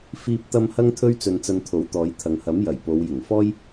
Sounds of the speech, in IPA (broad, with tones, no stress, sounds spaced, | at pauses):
f iː˧ p̚ t̪ ɐ˧ m h ɐ˥ ŋ t̪ʰ ɵ˥ ɥ t͡s ɵ˧ n t͡s ɐ˧ n t̪ʰ o˨˥ w t̪ ɔː˨˧ j t̪ʰ ɐ˨ ŋ h ɐ˨˥ m j ɐ˨˩ j p o˨˧ w j ɪ˨˩ ŋ f ɔː˥ j